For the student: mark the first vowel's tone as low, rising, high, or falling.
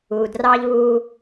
low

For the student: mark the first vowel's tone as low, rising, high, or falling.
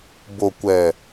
low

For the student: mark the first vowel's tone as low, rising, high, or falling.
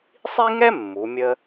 high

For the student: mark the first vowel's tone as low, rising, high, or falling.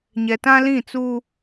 low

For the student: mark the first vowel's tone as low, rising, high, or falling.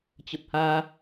low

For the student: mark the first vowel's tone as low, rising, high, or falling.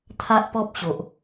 high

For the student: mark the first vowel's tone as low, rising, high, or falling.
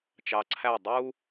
low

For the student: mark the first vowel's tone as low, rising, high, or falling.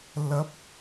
rising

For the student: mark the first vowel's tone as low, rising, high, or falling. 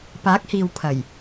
rising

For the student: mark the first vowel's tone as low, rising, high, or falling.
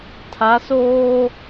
rising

